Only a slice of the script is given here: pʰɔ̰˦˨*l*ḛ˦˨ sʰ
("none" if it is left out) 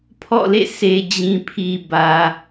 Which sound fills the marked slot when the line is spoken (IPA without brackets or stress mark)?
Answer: l